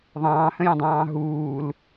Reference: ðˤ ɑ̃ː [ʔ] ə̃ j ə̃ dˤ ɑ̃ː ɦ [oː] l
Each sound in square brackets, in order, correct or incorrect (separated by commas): incorrect, incorrect